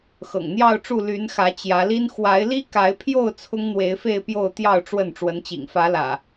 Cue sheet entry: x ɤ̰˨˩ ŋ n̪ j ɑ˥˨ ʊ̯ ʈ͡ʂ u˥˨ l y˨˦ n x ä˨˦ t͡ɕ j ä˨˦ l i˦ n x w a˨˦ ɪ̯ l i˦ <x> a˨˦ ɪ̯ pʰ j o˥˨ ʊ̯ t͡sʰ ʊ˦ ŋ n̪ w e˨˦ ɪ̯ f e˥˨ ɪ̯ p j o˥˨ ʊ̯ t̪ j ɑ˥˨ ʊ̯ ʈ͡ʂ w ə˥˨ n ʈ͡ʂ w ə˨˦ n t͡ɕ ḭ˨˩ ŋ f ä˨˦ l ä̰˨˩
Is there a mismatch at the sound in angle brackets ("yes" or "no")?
yes